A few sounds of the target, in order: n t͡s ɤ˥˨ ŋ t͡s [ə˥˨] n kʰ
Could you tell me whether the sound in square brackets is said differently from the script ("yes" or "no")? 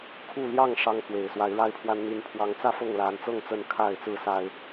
no